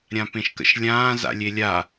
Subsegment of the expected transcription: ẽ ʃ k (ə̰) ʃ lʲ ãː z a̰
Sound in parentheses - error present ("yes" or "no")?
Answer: no